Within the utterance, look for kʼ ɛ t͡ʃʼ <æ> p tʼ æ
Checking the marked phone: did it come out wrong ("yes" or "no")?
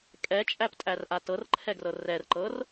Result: no